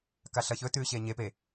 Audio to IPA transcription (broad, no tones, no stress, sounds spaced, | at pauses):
k a ɬ ɐ ç ɵ t ʉː ɕ eː ɲ e p e